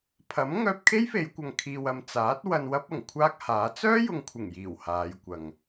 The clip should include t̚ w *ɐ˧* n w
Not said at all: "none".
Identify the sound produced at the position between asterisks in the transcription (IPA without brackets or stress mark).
ɐ˧